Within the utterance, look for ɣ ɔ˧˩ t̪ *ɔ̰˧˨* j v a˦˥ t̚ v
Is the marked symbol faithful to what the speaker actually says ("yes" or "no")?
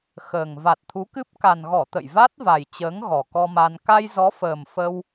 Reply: no